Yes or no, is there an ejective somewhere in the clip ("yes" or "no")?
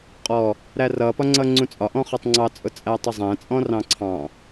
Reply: yes